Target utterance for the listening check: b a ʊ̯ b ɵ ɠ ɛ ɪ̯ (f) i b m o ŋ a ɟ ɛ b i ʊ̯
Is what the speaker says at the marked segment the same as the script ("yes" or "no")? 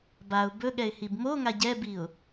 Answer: no